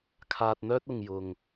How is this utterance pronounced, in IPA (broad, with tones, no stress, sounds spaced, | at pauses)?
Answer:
kʰ aː˧ t̚ n̪ œː˥ t̚ ʊ˨ ŋ j ʊ˨ ŋ